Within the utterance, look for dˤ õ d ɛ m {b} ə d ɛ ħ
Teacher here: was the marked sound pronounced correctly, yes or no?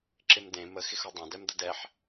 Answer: no